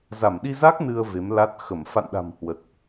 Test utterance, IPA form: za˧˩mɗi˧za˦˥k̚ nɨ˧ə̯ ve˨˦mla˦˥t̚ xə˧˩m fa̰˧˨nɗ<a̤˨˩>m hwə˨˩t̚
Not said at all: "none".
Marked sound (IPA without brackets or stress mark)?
a̤˨˩